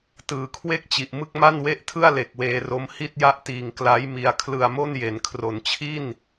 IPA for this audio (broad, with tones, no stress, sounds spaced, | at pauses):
t ɯː˩˦ kʰ w e˥˩ k̚ t͡ɕ i˨˩ ʔ m ɯ˥˩ k̚ m a˥˩ n w e˥˩ ʔ tʰ ɯ˥˩ a̯ l e˨˩ k̚ w eː˧ r o˦˥ m h i˥˩ t̚ j a˥˩ ʔ t iː˨˩ ŋ k l a˦˥ j m i˧ a̯ kʰ l ɯ˧ a̯ m o˥˩ n j e˩˦ n kʰ r o˩˦ n t͡ɕʰ i˥˩ n